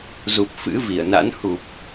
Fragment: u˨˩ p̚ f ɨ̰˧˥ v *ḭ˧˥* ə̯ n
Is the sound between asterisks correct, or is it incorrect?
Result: incorrect